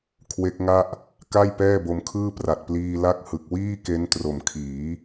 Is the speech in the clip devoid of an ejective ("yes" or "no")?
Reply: yes